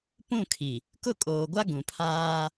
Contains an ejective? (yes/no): yes